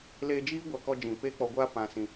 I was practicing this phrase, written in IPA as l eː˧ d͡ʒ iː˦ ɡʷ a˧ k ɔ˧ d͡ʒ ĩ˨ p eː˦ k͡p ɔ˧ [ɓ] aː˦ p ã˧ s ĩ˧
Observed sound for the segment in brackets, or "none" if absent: ɡʷ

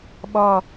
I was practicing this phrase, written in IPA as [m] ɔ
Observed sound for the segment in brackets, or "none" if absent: ɓ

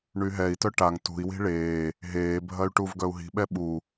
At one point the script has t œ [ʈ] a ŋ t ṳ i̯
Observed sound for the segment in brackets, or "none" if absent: ʈ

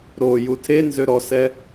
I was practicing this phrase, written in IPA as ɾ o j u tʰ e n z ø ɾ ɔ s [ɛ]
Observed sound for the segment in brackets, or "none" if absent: ɛ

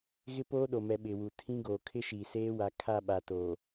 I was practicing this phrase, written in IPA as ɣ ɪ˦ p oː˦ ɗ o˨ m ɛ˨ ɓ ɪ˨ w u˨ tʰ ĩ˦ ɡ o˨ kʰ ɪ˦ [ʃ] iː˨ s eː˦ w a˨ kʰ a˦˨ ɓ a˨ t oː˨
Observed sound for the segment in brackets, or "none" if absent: ʃ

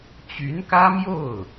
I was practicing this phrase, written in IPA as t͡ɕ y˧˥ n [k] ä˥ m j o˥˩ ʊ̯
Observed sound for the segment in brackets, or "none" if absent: k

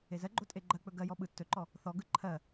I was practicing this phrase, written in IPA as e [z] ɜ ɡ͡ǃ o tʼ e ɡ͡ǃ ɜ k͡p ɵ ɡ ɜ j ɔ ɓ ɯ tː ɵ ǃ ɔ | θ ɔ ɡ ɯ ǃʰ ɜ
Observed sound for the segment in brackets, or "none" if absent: z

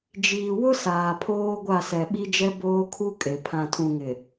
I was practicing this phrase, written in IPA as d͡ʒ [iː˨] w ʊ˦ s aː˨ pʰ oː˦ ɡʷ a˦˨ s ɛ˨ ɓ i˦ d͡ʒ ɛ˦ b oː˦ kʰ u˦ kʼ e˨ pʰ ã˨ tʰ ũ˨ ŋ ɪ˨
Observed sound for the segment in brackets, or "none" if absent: iː˨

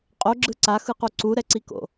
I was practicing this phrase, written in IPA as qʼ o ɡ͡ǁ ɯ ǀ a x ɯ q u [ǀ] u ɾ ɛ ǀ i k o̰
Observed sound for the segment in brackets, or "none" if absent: ǀ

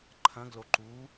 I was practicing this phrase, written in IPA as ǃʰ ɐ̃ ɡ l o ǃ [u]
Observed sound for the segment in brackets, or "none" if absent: u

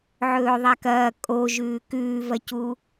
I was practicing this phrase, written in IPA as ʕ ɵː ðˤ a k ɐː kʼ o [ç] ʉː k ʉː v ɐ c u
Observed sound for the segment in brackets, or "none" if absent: ʒ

